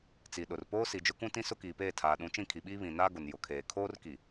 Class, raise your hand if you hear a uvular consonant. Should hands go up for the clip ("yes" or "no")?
no